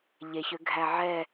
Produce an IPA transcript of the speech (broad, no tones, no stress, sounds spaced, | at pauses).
ʎ e ç ø ɡʱ æ ʕ ɛ